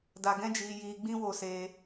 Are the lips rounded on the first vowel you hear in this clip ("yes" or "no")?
no